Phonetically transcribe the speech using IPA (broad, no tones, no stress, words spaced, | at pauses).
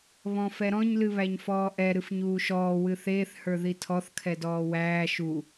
βɔ̃fɛɾɔ̃ɲ lɨβæɲfɔːʔɛ ɾɨfɲuːʃɔː wɨθeːθ hə˞ðitʰɔθ kʰɛdɔːwæː ʃu